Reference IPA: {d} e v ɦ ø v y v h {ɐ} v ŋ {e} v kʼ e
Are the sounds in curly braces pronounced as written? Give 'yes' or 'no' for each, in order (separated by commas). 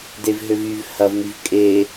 yes, yes, no